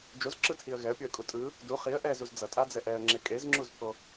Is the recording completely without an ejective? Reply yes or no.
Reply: no